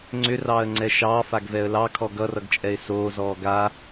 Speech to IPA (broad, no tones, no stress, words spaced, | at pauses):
ŋ͡ǀʏrɑːə̯ŋ͡ǀɛ ʃɑːfaɡvɛə̯ lɑkʰɔ ɡʌrʌɡt͡ʃʼɛɪ̯ soːzɔː ɡa